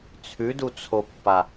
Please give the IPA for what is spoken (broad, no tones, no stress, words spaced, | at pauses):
t͡sʰʉdut͡sʰopːa